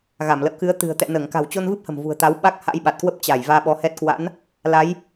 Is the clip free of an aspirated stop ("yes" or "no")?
yes